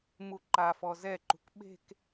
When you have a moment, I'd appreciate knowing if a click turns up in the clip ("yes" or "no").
yes